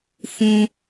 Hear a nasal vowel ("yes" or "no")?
yes